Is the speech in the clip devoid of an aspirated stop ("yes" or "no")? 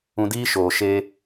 yes